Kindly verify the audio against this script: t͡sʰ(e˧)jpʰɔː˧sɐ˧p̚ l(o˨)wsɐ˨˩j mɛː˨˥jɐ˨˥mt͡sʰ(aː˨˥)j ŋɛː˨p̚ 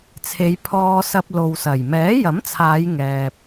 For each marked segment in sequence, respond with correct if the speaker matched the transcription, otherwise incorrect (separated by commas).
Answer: incorrect, correct, incorrect